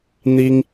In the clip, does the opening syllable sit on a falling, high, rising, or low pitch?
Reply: high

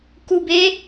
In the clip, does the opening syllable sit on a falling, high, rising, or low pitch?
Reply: low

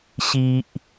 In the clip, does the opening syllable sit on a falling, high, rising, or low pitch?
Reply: low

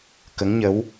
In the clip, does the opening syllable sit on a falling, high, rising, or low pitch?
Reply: rising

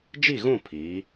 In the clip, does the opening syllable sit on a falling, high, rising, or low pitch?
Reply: falling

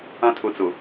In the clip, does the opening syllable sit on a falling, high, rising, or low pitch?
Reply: high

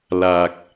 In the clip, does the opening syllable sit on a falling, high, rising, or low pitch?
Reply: low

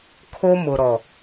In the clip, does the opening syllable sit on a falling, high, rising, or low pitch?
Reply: high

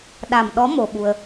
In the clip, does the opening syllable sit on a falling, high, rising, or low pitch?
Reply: low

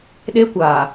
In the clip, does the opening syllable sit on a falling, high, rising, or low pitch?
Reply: high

